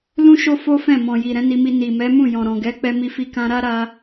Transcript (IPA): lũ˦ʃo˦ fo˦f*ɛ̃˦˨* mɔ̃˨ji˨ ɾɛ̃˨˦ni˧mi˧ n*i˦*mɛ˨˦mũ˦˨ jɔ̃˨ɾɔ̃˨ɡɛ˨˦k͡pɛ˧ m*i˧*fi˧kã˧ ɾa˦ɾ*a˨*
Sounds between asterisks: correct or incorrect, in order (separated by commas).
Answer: correct, incorrect, correct, incorrect